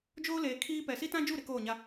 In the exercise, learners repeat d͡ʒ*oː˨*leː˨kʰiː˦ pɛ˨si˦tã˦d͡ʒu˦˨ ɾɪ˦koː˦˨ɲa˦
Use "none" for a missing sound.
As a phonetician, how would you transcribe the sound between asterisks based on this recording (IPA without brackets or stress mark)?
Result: oː˦